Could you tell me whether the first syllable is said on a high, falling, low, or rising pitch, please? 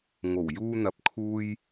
low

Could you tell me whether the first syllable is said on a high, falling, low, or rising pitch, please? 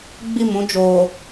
falling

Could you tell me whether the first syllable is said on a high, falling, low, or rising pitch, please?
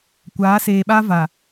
rising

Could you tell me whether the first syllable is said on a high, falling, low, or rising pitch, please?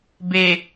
low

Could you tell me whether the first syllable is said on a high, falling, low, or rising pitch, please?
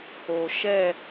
low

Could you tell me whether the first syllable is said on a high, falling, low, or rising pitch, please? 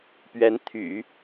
rising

